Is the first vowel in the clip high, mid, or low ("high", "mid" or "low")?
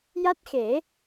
low